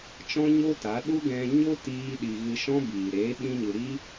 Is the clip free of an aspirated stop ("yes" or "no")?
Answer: yes